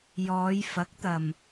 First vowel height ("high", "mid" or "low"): mid